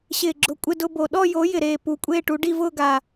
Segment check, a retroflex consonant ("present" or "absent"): present